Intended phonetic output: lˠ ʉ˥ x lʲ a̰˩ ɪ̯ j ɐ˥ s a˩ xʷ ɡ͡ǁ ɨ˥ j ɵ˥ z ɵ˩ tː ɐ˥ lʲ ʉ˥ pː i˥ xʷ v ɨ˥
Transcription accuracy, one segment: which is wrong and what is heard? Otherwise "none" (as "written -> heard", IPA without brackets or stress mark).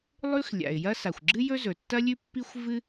none